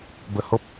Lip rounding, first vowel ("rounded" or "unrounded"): unrounded